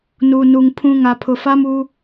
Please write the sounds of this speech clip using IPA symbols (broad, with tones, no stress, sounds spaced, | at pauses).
n u˨ n u˨ ŋ pʰ ũ˦ ŋ a˨ pʰ ʊ˨ f a˦ m u˦